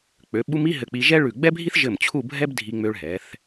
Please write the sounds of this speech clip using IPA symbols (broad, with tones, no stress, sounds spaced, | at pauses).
k͡p ø˩˧ ɓ u˧ m i˥˧ ɦ ɘ˧˩ k͡p i˧ ʒ ɛ˥ ɭ ʉ˧˩ ɡ͡b ɛ˥ bʱ i˥ θ ʒ ɘ˧˩ m t͡ɕʰ u˥˧ bʱ ɛ˥ b dʱ i˧ ŋ͡m ø˧ ɭ ɦ ɛ˩˧ θ